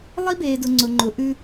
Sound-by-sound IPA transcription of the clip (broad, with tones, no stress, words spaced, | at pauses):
lˠi˦beː˨dʊ˨ ŋ͡ǀʊ˨ŋ͡ǃʊ˨˦ʔʉ˦